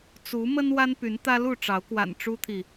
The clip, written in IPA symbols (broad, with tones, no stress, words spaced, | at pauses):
t͡su˨˦mə˦n wa˦npy˨˦nt̪ä˦ lu˥˨ʈ͡ʂɑ˨˦ʊ̯kwa̰˨˩n ʈ͡ʂu˦t̪ʰi˨